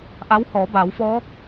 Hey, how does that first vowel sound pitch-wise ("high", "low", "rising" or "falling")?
rising